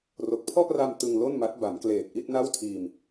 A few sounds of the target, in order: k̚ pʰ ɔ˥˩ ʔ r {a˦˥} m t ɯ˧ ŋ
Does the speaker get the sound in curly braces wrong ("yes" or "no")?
yes